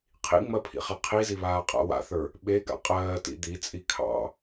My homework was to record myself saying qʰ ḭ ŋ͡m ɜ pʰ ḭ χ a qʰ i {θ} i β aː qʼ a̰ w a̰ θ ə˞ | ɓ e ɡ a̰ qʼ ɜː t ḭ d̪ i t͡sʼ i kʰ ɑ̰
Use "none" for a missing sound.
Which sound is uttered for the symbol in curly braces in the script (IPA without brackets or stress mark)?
z